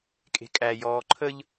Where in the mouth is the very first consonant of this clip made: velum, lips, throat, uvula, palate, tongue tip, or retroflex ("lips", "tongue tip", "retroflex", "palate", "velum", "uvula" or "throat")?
velum